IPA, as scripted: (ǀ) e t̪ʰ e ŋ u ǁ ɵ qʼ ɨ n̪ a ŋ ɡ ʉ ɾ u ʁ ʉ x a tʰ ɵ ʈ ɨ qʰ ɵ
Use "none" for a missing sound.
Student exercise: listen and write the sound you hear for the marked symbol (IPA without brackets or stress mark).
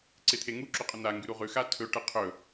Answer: ǀ